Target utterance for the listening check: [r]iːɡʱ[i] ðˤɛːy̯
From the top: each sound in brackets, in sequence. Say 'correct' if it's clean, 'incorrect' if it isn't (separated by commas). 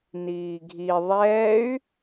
incorrect, correct